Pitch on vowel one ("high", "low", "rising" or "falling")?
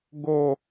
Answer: high